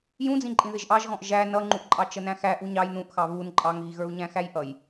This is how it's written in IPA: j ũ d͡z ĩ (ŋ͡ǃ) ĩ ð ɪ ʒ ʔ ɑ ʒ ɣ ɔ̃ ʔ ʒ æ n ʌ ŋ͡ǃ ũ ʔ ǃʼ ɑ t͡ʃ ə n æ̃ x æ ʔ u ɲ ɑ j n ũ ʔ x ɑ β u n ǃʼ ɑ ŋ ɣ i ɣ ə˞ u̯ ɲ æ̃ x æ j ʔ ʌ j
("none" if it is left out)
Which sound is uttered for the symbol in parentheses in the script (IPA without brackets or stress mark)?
ǃʼ